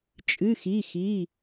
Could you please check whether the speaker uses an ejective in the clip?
yes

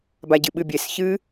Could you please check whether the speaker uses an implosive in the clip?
yes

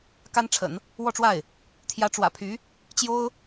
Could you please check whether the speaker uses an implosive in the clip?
no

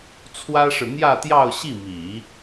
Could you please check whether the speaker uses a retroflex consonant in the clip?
yes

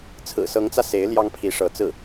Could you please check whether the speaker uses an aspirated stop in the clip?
yes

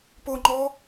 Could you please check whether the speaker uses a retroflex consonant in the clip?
no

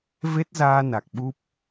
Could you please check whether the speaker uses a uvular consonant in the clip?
no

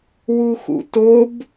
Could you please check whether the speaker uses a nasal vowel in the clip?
no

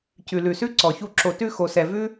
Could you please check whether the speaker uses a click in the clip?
yes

